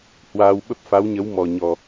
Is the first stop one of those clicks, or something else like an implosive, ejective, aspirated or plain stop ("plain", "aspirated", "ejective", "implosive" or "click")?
implosive